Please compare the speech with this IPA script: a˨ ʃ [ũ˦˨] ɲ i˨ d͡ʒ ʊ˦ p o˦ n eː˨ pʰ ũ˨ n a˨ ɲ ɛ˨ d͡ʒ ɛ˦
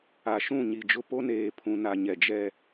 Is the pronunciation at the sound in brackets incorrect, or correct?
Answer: correct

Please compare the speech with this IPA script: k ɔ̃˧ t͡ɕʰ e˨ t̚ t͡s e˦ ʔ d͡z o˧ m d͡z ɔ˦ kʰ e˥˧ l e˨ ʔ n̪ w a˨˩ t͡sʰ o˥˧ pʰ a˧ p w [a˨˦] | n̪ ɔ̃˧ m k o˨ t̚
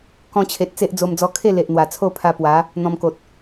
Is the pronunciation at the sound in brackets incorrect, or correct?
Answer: correct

